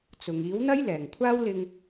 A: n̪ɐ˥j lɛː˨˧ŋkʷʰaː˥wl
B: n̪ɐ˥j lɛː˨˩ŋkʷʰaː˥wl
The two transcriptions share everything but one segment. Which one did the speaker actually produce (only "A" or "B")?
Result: B